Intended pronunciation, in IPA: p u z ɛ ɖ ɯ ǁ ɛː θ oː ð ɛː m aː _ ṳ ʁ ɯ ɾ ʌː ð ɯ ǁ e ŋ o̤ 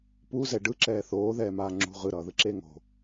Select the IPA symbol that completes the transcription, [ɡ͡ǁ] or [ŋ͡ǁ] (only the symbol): ŋ͡ǁ